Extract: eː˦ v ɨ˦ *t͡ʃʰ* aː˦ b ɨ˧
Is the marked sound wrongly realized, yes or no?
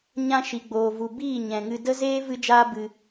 yes